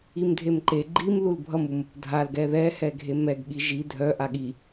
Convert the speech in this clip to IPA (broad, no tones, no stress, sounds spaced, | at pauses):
i m dʱ e m ǃ e ɡ͡ǃ i m l u l bʱ ʌ m u m | dʱ a l ɡ ɛ ð ɛ h ɛ ɡʱ e m ɛ ɡ ɠ i ʒ i dʱ œ ʔ a ɠ i